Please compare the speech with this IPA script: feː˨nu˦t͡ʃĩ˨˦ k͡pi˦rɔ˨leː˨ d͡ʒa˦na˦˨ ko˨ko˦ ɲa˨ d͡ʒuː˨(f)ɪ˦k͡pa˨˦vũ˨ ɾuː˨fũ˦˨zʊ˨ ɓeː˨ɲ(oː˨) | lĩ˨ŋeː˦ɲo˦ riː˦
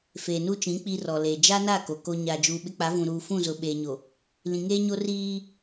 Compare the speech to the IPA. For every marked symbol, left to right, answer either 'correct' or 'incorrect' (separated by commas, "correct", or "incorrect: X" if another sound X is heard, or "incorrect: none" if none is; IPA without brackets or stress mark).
incorrect: ɓ, incorrect: o˨